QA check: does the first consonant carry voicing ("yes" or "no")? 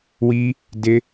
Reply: yes